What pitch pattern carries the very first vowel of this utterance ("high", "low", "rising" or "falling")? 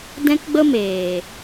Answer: high